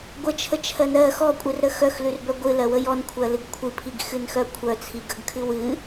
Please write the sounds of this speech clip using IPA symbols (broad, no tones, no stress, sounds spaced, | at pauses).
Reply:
ɡʷ ə t͡ʃʰ ə t͡ʃʰ ɜ n ɜ x ɔ kʷʼ ɨ r ɾ ə x œ x l ʉ r b œ ɡʷ ɨ l ɜ w ə j ɔ n kʷʰ ɜ l ɨ ɡ kʷʰ ɨ pʰ i ɡ x ɨ n x œ kʷʰ œ t͡sʰ i ɡ ə ɡ kʰ ɨ w ɨ